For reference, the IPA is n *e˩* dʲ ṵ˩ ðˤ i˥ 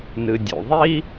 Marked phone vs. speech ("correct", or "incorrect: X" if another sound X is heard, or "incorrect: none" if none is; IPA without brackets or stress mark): incorrect: ɨ˩